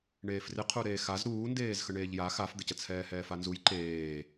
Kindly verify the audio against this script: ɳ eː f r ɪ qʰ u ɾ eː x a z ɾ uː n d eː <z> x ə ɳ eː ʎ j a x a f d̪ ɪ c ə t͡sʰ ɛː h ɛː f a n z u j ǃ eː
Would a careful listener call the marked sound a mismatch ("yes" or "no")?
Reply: no